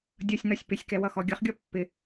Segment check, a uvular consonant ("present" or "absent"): present